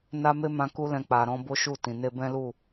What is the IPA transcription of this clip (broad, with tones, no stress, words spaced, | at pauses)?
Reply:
na˦me˦mã˧ ku˦lɛ̃˧ k͡pa˨ɾɔ̃˧ bo˦ʃu˦˨tĩ˨ ne˧bɛ̃˦lu˦˨